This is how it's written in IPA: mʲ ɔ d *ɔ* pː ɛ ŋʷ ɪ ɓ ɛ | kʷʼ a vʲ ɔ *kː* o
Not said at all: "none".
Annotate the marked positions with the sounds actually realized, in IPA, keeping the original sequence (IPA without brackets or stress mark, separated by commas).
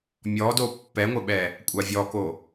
o, k